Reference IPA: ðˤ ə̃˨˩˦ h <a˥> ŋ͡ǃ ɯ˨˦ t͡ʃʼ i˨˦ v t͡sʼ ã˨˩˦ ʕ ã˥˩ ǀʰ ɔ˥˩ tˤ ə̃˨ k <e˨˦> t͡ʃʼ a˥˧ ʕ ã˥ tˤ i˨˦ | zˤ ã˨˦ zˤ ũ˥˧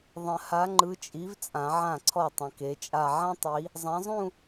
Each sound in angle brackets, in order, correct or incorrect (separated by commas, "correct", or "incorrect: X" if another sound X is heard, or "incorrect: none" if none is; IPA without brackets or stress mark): incorrect: a˨˦, correct